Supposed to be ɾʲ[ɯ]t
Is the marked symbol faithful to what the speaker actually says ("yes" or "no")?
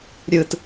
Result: yes